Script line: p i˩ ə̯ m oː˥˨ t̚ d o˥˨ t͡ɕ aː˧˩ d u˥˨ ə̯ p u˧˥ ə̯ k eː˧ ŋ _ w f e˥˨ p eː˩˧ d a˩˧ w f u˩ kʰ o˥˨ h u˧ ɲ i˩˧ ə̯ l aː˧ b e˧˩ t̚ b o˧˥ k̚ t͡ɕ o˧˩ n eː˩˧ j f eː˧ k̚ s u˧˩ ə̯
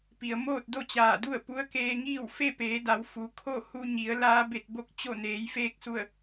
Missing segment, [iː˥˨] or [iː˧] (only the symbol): iː˥˨